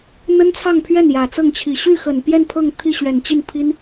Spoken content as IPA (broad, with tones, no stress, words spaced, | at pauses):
n̪ə˥nt͡sʰɑ˥˧ŋpʰɥɛ˥˩n jä˨˩t͡sɤ˥˩ŋt͡ɕʰi˨˩ ɕy˥˩xə˨˩npjɛ˥˧n pʰɤ˥˧ŋ t̪ʰi˥˩ɕɥɛ˨˩nt͡ɕi˥˩npʰi˥n